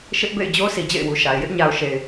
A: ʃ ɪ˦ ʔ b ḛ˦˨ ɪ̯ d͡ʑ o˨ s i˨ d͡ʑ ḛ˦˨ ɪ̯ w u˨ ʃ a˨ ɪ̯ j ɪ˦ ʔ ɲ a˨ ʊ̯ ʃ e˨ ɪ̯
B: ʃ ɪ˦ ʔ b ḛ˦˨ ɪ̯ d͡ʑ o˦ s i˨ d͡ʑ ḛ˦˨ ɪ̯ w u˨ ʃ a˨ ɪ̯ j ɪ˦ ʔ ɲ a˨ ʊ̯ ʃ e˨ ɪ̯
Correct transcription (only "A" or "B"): B